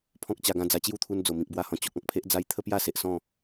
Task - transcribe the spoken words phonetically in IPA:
pʰ ɔ̃˦ k̚ t͡ɕ a˧ ɡ ã˥˧ d͡z a˧ t͡ɕ j u˥˧ t̪ʰ u˧ n d͡z o˨˩ m ĩ˨ k̚ b w a˧ h ɔ̃˨˩ t͡ɕ o˨ k̚ ɔ̃˨ k̚ pʰ e˦ ʔ d͡z a˧ j t̪ʰ ə˦ p j a˥˧ s e˨ ʔ s ɔ̃˥˧

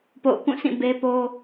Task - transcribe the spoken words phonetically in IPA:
p o̰˦˨ ʊ̯ k ũ˦˨ sʰ ĩ˦˨ b e˦ p o˦

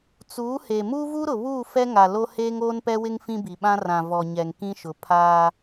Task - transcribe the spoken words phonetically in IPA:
t͡s uː˨˦ h e˨ m uː˦ v u˦ ɾ ʊ˨ β uː˦˨ f ɛ˦ ŋ a˨ l o˦ h eː˦ ŋ oː˦ n p ɛ˦ w ɪ˦ ŋ f ĩ˦ b i˨ ɓ ã˦ r ã˨ v ɔ˨ ɲ ɛ˨ ŋ k ĩ˦ ʃ ʊ˨ pʰ aː˦

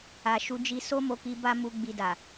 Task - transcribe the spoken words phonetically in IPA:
a˧ ʃ u˦ d͡ʒ i˧ s o˦ m o˧ k i˧ b a˦ m u˧ ɡ͡b i˧ d a˨

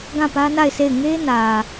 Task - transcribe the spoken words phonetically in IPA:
ɡ ã˦˨ p ä˦ n a˦˨ ɪ̯ sʰ e˦˨ ɪ̯ ŋ e˦ n ä˨

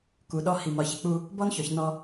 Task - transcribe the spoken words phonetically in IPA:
k u˨ ɗ ɔ˦ h i˨ m ɒ˨ ç ɪ˨ k͡p u˦ | b ɔ˦ n ç ɔ˨ ç n ɔ˦

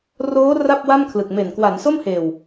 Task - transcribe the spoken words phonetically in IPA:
r oː˦˥ r a˥˩ p̚ w a˥˩ m kʰ l ɯ˨˩ k̚ m e˨˩ n k w a˩˦ n s o˥˩ m h eː˨˩ w

